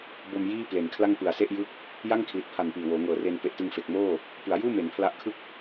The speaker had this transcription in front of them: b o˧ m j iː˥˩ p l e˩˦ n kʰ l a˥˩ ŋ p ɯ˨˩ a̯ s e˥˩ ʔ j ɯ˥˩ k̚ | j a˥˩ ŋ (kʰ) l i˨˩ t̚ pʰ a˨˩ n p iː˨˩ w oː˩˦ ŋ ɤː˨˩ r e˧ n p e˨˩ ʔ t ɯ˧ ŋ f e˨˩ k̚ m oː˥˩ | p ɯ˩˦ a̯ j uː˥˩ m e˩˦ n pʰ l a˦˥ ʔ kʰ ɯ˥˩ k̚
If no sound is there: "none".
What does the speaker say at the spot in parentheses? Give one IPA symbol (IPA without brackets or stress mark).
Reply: kʰ